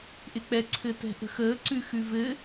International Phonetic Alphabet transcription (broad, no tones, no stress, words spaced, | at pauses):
ʔɪk͡pɛ ǀʰɘtɛ̤ʔə̤xəː ǀʉxʉvɘ